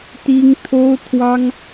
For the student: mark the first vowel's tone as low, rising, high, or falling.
high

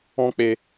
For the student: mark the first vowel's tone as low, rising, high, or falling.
high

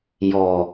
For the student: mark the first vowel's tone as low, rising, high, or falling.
low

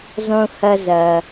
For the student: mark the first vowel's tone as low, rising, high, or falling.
high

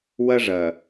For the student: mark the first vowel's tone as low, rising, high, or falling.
high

